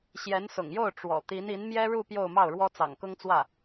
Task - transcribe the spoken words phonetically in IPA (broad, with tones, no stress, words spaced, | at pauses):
ɕjɛ˧˥nsʊ̰˨˩ŋjo˥˩ʊ̯ ʈ͡ʂwɔ̰˨˩ t̪i˧˥ni˧˥n mjɛ˥ɻu˥˧ pjo˥˧ʊ̯mɑ˥˩ʊ̯ɻwɔ˥ t͡sɑ̰˨˩ŋkʊ˥ŋt͡swä˥˩